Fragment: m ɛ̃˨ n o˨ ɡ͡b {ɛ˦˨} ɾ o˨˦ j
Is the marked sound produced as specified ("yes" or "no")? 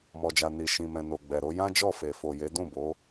no